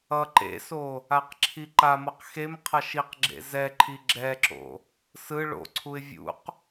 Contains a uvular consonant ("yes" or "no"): yes